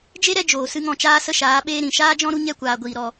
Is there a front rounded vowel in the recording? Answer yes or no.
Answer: no